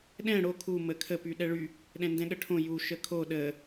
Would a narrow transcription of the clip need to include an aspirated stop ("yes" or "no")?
yes